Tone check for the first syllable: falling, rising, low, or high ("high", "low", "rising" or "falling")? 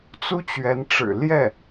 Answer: high